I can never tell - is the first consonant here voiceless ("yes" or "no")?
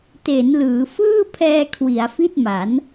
yes